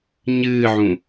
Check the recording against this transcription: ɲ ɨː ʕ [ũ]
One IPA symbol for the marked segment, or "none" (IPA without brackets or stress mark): ũ